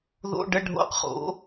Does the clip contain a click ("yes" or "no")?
no